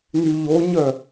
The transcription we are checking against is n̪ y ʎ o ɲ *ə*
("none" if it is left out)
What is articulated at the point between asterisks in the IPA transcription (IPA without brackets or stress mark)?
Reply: œ